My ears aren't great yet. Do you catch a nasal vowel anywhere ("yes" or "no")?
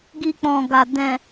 yes